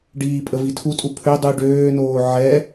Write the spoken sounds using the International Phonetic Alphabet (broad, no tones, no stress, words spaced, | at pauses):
ɖiːpʼəvi tʰutʼu pʰø dˤy ɖøːnoː ʕɛ